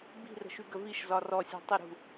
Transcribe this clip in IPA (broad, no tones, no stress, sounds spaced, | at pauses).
b i̤ r ə̤ ʃ y ɡ ə v i ʃ z ɒ r ɔ sʲ ɔ̤ tˤ ə ɾ ṳ